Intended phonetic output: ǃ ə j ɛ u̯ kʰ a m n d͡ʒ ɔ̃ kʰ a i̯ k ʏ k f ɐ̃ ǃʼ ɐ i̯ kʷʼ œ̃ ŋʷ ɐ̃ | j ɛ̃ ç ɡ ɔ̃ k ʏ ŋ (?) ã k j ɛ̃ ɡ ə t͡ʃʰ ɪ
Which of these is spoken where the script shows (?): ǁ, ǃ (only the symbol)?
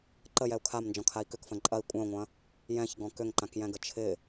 ǃ